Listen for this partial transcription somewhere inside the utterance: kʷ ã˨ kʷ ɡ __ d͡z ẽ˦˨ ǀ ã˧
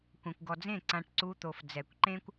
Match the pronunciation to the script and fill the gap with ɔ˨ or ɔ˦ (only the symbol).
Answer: ɔ˨